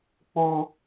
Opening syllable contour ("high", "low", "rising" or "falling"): high